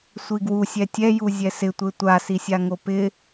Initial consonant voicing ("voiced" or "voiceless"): voiceless